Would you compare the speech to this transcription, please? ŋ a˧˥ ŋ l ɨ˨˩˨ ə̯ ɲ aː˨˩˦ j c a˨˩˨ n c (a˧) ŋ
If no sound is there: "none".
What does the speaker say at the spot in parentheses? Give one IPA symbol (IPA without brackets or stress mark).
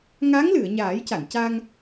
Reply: a˧